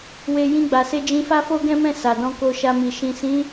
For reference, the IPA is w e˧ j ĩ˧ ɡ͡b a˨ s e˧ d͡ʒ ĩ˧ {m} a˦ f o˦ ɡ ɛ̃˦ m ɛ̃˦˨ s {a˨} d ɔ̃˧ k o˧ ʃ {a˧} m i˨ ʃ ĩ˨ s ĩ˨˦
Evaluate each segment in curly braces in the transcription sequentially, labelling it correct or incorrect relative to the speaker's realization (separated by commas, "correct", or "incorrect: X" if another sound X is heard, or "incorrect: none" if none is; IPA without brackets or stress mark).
incorrect: f, correct, correct